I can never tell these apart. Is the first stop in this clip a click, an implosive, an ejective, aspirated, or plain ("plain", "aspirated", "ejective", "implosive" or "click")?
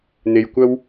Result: plain